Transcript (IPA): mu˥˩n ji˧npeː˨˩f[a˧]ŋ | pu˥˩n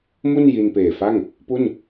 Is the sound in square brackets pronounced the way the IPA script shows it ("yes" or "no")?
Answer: no